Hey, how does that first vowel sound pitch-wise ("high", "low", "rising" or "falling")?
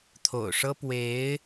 low